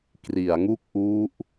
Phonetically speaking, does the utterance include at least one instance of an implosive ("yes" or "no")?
no